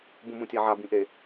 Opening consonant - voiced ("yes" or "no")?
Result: yes